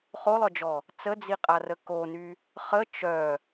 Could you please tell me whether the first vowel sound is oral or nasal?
oral